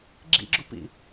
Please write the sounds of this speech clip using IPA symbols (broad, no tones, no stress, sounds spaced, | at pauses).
ɡ͡ǁ ḭ ɡ͡ǁ u p ḭ